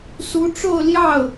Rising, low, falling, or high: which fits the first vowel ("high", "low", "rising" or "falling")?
rising